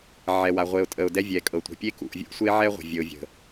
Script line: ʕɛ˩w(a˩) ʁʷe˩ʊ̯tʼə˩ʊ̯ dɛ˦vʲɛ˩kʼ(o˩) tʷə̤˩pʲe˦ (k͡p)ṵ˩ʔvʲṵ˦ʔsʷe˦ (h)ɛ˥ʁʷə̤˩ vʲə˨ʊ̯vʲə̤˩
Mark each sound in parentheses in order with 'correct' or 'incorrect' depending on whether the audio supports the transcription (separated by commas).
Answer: correct, incorrect, incorrect, incorrect